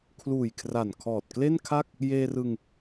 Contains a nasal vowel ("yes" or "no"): no